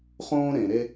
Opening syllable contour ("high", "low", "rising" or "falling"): high